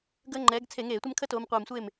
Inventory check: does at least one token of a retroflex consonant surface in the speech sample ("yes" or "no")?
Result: no